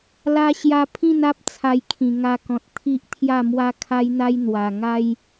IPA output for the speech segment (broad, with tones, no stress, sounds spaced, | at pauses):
l a˦ ɕ j a˦ pʰ ĩ˥˧ n a˦ p̚ t͡sʰ a˧ j kʰ ĩ˨˩ ŋ a˧ k ɔ̃˨ t̚ t̪ʰ i˦ ʔ t̪ʰ j a˥˧ m w a˦ kʰ a˦ j n̪ a˦ j n̪ w a˨˩ ŋ a˦ j